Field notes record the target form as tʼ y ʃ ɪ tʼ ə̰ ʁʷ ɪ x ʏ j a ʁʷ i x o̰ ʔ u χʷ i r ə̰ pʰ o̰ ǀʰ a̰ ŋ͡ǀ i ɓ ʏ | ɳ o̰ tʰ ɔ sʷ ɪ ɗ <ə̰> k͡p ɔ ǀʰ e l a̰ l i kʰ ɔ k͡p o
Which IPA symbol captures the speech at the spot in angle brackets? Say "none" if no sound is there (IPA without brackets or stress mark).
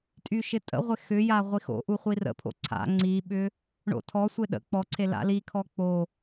ə̰